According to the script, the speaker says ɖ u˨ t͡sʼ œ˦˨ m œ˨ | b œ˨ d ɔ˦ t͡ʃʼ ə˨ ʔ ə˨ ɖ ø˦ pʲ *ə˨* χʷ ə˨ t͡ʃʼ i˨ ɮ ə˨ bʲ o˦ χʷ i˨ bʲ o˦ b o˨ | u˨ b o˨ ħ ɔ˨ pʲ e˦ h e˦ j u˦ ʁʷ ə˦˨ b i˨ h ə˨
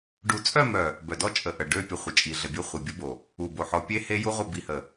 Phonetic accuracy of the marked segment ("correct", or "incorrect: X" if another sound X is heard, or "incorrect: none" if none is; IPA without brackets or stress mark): correct